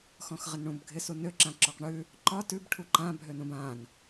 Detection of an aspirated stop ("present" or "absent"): present